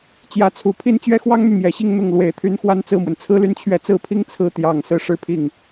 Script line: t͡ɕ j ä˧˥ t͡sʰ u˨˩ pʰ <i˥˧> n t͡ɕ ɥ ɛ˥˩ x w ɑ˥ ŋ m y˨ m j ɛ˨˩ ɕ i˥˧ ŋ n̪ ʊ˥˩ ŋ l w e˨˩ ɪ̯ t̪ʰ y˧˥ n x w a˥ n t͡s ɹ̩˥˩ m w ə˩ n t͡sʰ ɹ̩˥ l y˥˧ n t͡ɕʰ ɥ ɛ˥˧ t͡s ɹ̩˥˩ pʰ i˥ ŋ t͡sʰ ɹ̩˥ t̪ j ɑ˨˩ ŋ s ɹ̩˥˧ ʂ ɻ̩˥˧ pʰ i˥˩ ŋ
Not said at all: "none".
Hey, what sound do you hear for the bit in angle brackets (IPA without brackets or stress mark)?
i˥˧